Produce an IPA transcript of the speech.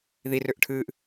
ð i r ø ʔ ʈʰ ɨː ʔ

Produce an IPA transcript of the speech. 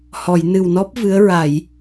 h ɔ˨˩˨ j n ɨ˨˩ w n ɔ˦˥ p̚ v ɨ˧˥ ə̯ ɹ a˨˩˨ j

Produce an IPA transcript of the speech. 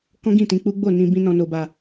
k ɔ̃˦ ɡ ĩ˦˨ t ĩ˧ k͡p u˦ ɡ͡b o˦˨ n ĩ˧ b ĩ˦ n ɔ̃˧ n o˧ b a˧

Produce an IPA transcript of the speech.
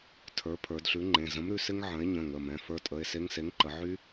tʰ ə˞˩˧ pʰ ə˞˩˧ d ɬ ʉ˨˥ ŋ͡ǃ ẽ˩˧˩ z ə̃˨˥ m ɾ ʉ˩˧ s ɪ˦˥ ŋ ʕ ə̃˨˥ e̯ ɲ ə̃˩˧˩ ŋ ə˩˧˩ m ɛ̃˩˧˩ f ə˞˦˥ tʼ ə˩˧˩ e̯ s e˦˥ ŋ s e˨˥ ŋ ǃ ə˩˧ ʕ y˦˥

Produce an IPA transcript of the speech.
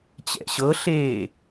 t͡ɕ ɛ̰ ɕ ɤ ɬ eː

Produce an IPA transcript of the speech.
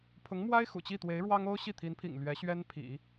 pʰ ʊ˧˥ ŋ m w a˥ ɪ̯ x ṵ˨˩ t͡ɕ i˥˩ t̪ w e˧˥ ɪ̯ ɻ w ɑ˥ ŋ o˥ ʊ̯ ɕ i˥˩ t̪ʰ i˧˥ n pʰ ḭ˨˩ ŋ l ɥ ɛ˧˥ ɕ ɥ ɛ˥ n pʰ ḭ˨˩˦

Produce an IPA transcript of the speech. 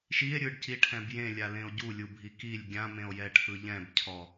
ʃ i e̯ ɾʲ ɯ ɖ c i ʈʰ ɛ̃ b j ẽ lʲ a l ẽ o̯ ɟ u lʲ u bʱ i k i lʲ ɡʲ ã m ẽ o̯ j ɛ ʈʰ ɯ ʎ ɛ̃ b cʰ ɔ

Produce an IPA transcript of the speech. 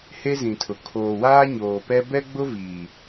h e˦ z ĩ˨ tʰ ʊ˨ kʰ oː˨ w aː˦ ɲ oː˨ p ɛ˦ b ɛ˦ ɡ͡b ʊ˦ v iː˨

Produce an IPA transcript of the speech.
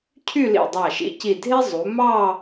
cʰ y˥˧ l ḭ˧˩ dˤ ɑ˧˩ ʃ ḭ˧ c i˧˩ dʱ e˥ zˤ u˩˧ m ɑ˥˧

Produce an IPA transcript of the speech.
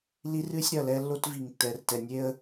l i˦ r ɨ˦ sʲ ɾ ɐ˨ l ɛ˦ lː o˦ t v i˨ ŋ tː ɛ˨ r t ɛ˨ nʲ e˦ ə̯

